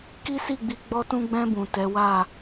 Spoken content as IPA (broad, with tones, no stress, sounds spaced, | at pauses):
k i˦ s i˦˨ ɡ͡b i˨˦ ɡ͡b ɔ˧ t ũ˧ ɡ͡b ɛ̃˧ b ũ˨ t ɛ˨˦ w a˦˨